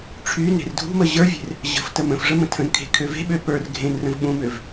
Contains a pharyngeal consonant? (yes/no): no